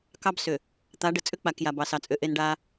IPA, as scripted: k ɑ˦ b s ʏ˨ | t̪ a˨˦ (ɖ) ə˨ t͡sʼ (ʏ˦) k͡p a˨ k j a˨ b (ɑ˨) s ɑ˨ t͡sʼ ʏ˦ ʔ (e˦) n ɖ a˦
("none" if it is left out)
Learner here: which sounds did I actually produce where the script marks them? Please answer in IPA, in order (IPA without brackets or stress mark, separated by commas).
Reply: ɖ, ʏ˦, ɑ˨, e˦